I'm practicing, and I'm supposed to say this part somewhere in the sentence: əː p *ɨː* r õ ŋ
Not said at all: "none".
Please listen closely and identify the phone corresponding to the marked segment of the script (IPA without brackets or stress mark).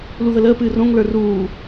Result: ɨː